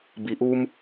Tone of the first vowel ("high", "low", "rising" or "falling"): low